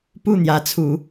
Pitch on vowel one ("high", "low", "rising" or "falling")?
falling